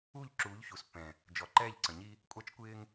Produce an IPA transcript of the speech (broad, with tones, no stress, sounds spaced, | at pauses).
u˦˨ ʎ ǁ uː˨˦ ʎ ç u˨ s pː ɛ̃˨ | d͡ʒ ɔ˨ ǃ ɛː˦˨ ʎ ǀ ə̃˨ ɲ i˦ | kʷʼ ɑ˦ t͡ʃ kʷ ɪː˦ ŋ